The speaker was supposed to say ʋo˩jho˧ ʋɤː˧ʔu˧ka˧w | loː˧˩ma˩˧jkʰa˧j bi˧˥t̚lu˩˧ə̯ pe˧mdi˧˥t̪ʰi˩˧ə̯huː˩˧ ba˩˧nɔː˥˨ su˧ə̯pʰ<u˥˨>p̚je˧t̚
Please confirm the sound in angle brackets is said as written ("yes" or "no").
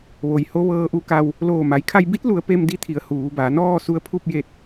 yes